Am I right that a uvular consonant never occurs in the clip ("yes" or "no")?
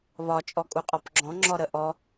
no